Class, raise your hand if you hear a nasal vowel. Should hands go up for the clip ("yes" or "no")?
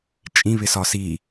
yes